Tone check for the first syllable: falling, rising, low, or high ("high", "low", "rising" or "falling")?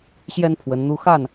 high